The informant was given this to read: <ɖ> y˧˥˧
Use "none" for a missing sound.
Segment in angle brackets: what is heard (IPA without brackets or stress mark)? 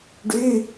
ɖ